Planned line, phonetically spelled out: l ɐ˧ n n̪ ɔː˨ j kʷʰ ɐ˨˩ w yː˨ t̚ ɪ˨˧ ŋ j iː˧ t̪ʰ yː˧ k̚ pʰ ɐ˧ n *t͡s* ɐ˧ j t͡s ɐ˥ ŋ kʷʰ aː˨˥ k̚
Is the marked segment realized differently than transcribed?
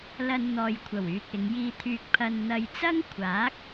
yes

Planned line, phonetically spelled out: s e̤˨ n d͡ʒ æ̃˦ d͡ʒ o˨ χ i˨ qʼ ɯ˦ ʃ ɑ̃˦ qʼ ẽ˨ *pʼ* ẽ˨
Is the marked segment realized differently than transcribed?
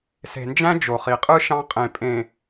no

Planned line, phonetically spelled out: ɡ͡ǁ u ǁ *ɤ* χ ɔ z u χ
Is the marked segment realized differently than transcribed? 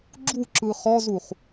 yes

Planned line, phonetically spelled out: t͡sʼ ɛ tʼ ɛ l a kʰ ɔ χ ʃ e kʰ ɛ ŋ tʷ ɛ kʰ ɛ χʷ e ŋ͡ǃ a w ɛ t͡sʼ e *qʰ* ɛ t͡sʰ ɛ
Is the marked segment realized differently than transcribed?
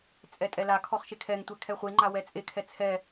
yes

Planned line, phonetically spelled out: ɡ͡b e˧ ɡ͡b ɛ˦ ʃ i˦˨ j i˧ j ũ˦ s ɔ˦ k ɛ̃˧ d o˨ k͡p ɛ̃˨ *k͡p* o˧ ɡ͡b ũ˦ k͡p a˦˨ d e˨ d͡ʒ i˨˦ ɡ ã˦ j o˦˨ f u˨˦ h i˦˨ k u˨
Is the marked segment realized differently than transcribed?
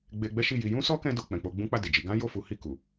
no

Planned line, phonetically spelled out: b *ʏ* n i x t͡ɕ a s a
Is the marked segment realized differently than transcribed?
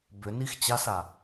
no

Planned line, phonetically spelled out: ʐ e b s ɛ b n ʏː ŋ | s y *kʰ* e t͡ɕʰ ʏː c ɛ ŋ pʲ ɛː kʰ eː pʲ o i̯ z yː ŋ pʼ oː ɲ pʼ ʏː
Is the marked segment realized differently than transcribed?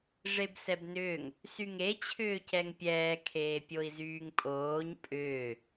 yes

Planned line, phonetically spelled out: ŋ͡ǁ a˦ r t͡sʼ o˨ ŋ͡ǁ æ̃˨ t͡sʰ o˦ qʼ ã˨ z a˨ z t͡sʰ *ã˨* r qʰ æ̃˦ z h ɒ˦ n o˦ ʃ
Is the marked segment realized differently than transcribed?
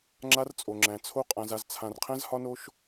no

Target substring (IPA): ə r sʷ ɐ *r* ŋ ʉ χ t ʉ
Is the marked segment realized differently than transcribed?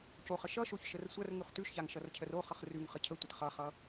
no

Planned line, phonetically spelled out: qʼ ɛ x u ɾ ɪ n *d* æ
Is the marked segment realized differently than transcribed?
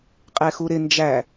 yes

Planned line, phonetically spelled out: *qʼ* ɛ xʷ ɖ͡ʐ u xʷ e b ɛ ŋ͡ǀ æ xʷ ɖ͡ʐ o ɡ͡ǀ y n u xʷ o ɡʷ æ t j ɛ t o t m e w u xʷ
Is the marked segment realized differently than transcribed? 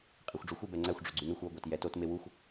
no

